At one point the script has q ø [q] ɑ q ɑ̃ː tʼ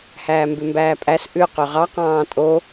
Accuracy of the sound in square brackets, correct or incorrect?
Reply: incorrect